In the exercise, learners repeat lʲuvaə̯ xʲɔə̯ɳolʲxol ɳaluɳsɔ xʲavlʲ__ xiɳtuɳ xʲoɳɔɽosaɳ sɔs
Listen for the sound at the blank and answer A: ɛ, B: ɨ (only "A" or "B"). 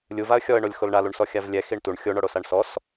A